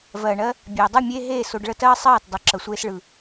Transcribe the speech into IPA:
vɜː˨ɳɜ˧ | bʲeː˨dˤɯ˦˨ mʲeː˦ ɦeː˦˨so˧ɖ ɭə˦tɜː˦ sˤɜː˦˨tdˤə˨˦ ǁə˧sʷeː˦sɭɯ˧

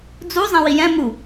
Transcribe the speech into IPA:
d͡zu zˤɛ̃wijɛ̃ mu

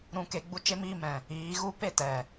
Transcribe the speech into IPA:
ɾũ˧ke˧ ɡ͡bu˦t͡ʃe˦miː˦ mɛ̃˨ | iː˨˦ɣu˦ pe˦˨tɛ˨

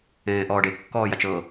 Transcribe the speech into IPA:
ẽːʔɔːɖe kːɔːjat͡ʃɤ

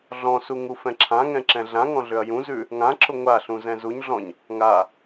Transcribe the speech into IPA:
ɮɔ̃su ŋufɛ̃ǁʰãŋɛ̃ ǁɛ̃ɮãŋɔ̃ ɮʏɐ̯jũzʉ | ŋãǁʊ ŋʷaɬũ zɛ̃zuɲɮɔ̃ɲ | ŋa

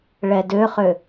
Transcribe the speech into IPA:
ɭɛdøχø

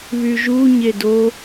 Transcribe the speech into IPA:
βyʒu ɲedo

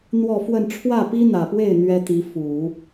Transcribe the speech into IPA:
n̪wɔ˥˧fwə˥˧n ʈ͡ʂʰwä˥˩pi˥n̪ä˨˩pwe˥˩ɪ̯ n̪ɥɛ˥t̪i˧˥ fu˨˩˦

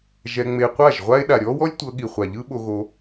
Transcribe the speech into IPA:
ʒɛ˧ŋ͡me˧ qʷa˦˨ʒʁʷa˦e̯ ɗa˨ɾʲɔː˦wɔ˦lʲ tʷɤ˧ɠi˨χʷa˨ʎɯ˦ ɓo˧ɣo˧

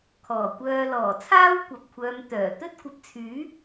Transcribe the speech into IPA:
kʰɔː˨˩kʷœː˧ lɔː˨˩t͡sʰaː˥wkʷɐ˨p̚kʷʰœː˨˧m t̪œː˨˩ t̪ɵ˥t̚ kʷɐ˨˥p̚t͡sʰyː˨˥

